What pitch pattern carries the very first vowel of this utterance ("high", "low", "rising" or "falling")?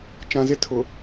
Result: low